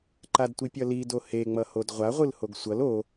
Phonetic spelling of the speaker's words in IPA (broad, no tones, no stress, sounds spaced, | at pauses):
ǃ a d tʷ i pʲ ʌ l i d o h e ŋ͡m ʌ h o d ʁʷ a ʁʷ ɯ l h o ɡ sʷ ʌ l o